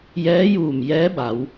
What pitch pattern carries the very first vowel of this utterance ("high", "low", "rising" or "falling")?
rising